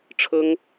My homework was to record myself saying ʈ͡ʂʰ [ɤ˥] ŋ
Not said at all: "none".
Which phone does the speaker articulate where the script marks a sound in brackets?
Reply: ɤ˥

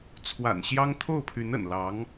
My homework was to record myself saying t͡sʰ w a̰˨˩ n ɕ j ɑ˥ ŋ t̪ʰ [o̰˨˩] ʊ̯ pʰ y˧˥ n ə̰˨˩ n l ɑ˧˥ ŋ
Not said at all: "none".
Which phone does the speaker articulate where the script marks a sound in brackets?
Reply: o˥˩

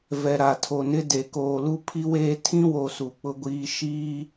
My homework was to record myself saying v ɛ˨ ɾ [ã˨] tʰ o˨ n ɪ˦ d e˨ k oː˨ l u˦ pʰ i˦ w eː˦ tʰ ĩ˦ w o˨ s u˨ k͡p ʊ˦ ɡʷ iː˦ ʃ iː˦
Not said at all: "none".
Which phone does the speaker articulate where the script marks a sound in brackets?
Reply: a˨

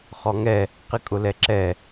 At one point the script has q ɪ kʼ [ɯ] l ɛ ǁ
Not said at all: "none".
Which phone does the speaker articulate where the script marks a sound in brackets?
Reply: ʊ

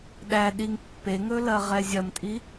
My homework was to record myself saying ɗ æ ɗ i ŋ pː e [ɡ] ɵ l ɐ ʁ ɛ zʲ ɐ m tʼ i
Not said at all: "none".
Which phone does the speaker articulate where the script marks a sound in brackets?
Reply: ŋ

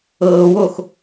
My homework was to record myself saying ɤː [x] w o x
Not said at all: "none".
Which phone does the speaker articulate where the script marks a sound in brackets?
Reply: none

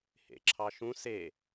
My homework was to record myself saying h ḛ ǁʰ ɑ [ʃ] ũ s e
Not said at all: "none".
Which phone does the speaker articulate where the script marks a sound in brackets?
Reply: ʃ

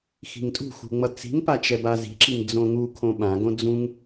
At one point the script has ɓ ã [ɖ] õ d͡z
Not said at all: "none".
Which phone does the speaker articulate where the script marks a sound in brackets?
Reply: ɡ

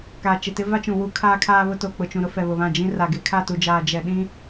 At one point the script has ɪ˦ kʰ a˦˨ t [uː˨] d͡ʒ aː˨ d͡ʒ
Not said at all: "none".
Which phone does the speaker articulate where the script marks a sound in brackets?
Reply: u˨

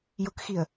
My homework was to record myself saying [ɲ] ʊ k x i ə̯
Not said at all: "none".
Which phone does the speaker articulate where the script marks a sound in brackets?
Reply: j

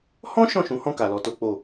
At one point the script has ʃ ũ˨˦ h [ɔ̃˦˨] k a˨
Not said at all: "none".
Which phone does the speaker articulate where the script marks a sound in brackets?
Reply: ɔ̃˦˨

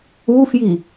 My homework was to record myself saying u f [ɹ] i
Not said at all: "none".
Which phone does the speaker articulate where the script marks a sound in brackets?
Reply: j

